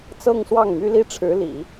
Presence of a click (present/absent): absent